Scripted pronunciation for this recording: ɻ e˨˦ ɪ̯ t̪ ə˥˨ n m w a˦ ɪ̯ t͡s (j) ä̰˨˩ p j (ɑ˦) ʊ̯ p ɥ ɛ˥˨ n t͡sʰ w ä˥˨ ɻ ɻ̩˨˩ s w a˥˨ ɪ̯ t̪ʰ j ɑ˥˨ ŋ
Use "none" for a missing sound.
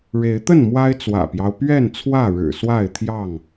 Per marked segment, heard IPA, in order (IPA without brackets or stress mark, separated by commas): w, ɑ˦